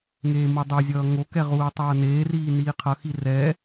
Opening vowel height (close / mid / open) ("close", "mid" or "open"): mid